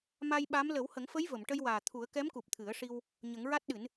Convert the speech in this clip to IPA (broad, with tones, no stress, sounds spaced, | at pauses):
m a˧ j ɓ a˧˥ m l ə˨˩˦ w h ə˨˩˦ ŋ f ə˧˥ j v ə˨˩˨ m ʈ ə˧ j w aː˨˩ t̪ʰ u˨˩˦ ə̯ k ɛ˧˥ m k u˨˩ p̚ t̪ʰ ɨ˨˩˦ ə̯ ʂ i˧ w | ɲ ə˨˩˦ ŋ ɹ a˦˥ t̚ ɗ ɨ˨˩˦ n